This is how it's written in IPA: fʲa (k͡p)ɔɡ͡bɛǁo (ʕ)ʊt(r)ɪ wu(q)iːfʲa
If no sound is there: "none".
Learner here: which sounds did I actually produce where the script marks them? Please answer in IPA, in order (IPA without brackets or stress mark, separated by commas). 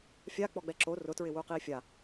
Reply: k͡p, r, ɹ, q